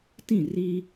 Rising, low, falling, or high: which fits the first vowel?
falling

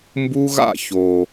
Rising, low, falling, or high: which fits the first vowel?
high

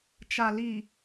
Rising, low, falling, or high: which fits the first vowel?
low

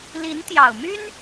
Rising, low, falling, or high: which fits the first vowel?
rising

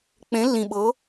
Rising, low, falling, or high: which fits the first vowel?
rising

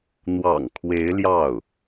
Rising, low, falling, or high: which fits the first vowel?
low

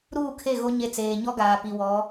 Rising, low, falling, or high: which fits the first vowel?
falling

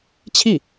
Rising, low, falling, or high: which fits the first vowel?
falling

